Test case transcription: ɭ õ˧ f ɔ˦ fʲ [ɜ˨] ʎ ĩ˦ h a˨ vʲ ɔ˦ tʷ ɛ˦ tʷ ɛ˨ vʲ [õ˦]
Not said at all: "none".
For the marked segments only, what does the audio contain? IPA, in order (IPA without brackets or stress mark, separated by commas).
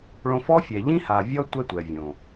ɛ˨, õ˨